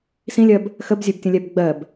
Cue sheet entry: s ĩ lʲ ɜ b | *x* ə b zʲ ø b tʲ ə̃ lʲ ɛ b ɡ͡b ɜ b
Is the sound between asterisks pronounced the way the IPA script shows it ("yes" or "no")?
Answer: yes